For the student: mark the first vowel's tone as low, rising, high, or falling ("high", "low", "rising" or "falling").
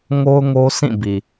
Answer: high